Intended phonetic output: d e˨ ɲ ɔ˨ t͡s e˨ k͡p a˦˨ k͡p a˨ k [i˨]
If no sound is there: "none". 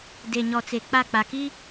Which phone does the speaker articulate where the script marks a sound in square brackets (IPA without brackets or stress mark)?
i˦